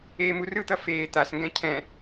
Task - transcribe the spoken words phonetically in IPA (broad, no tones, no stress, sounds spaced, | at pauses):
eː m u r ɯ t̪ ʌ f eː t̪ a s ŋ ɡ ɛ̃ cʰ ɛ̃